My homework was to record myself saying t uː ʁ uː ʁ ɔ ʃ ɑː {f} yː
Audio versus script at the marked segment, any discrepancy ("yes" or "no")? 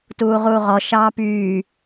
yes